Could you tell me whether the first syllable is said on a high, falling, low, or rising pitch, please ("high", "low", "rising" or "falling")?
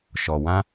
low